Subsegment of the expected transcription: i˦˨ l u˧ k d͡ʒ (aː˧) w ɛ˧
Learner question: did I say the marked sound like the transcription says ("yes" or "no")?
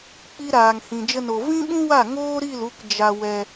no